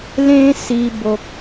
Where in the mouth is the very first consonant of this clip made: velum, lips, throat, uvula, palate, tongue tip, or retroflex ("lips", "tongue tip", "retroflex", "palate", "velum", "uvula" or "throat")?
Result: tongue tip